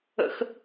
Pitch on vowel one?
high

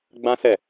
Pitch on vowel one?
high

